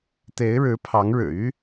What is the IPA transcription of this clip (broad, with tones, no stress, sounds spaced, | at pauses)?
t̪ e˧˥ ɪ̯ ɻ ɻ̩˧˥ pʰ ɑ˧˥ ŋ ɻ ɻ̩˨˩ y˥